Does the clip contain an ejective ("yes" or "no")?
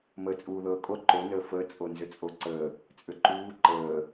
yes